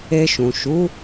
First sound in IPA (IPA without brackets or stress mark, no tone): e